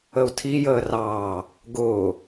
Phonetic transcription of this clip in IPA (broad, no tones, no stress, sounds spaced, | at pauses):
ə u̯ tʰ i j əː r ɑː | ɡ ʊː